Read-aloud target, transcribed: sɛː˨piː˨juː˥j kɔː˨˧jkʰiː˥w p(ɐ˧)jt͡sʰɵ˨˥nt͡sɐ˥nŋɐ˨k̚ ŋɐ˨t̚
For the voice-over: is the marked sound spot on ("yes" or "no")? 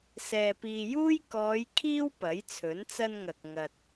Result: no